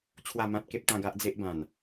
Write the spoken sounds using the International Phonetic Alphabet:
t͡ɕʰ w a˥˧ m ã˦ t̚ k e˦ p̚ t̪ ã˥˧ ɡ a˦ ʔ d͡z e˦ ʔ b ã˨˩ n

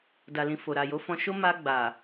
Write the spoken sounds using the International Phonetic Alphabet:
d a˨ l ĩ˨ f o˨ ɾ a˨ j o˨˦ f ɔ̃˧ ʃ o˦ m a˧ ɡ͡b a˨

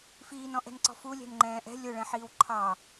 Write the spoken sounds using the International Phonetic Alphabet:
f iː n ɔ̃ ʔ ɛ̤ n ǀ ɔ̤ f u lʲ ɛ̤ n ŋ͡ǃ ɛ̃ː ʔ ɛ̤ lʲ ʊ ɭ ɛ̃ ħ iː w ǃʰ ɑ

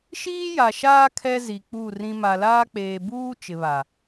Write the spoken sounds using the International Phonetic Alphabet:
ʃ iː˦ j a˨ ʃ aː˦ kʰ ɛ˦ z i˨ k͡p u˦˨ r ĩ˨ m a˨ l aː˦ k͡p eː˨ b uː˦ t͡ʃ ɪ˨ β a˨

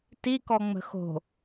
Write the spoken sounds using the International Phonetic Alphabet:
t i k ɔ ŋ͡m ə̤ x o̤

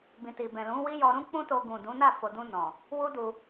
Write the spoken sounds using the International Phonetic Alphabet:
b ĩ˨ t i˨ b ɛ̃˨ l ũ˨˦ w i˦ j ɔ˧ ɾ ũ˦ k͡p ũ˦ t o˧ ɡ ũ˨ d ũ˨˦ n a˦˨ f o˨ d ũ˧ n ɔ̃˨ | w u˦ d u˧

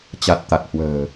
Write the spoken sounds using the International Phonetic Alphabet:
t͡ɕ a˨˩ t̚ t̪ a˨˩ t̚ h w ə̤ː˨˩

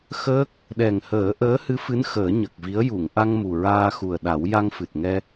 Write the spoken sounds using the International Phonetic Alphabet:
x əː˦˥ k̚ | ɗ ɛ˨˩ ŋ h əː˨˩˦ ʔ əː˧˥ h ɨ˧˥ f ɨ˧˥ n x əː˨˩˦ ɲ ə˨˩ k̚ v i˧˥ ə̯ j u˨˩˨ ŋ ʔ a˧ ŋ m u˨˩ ɹ aː˧ x u˨˩ ə̯ ɗ a˨˩˦ w j a˧ ŋ f ɨ˨˩ t̚ ŋ ɛ˧

